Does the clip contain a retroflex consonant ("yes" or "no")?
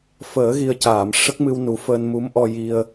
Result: yes